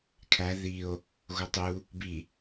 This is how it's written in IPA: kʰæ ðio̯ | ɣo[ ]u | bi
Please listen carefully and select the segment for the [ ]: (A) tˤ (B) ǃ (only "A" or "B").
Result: A